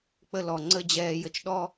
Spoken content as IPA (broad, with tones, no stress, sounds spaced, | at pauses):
k͡p ə˦ l ɔ˨ ŋ͡ǀ ə˦˨ d͡ʑ ɛː˧ j ə˧ t͡ʃ ɗ ɔ˦